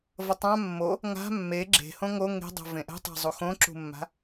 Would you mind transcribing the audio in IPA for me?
v ʌ tˤ ã mː o | ŋ a̤ mː e ɡ͡ǁ e̤ h õ ŋ o ŋ e̤ dˤ o̤ v ẽ ʔ ɛ̤ tˤ a̤ zˤ u x õ ǁ ṳ mː a̤

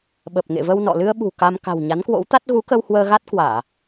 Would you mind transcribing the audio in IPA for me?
ɓ ə˨˩ p̚ ŋ ḛ˧˨ v ə˧ w n ɔ̰˧˨ l ɨ˧ ə̯ ɓ ṳ˨˩ k a˧ m k a̤˨˩ w ɲ a˨˦ n k w o̰˧˥ w t̪ a˦˥ t̚ ɣ u˨˦ k ə˧ w h w əː˧ ɣ a˦˥ t̚ k w aː˧˩˨

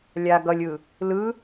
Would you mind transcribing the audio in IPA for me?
lʲ a ɡ ʌ lʲ ɯ | l ɯ

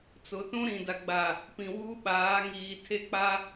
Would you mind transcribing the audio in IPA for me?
t͡s ʊ˨ t ũ˦ ɾ ĩ˨ d a˨ ɡ͡b a˨ | p ĩ˨ w uː˦ ɓ aː˨˦ ŋ iː˨ tʰ e˦ k͡p a˦

